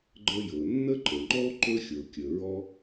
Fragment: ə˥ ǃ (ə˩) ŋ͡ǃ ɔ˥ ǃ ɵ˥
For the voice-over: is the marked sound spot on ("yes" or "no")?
yes